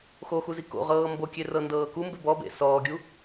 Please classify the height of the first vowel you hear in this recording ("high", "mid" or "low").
mid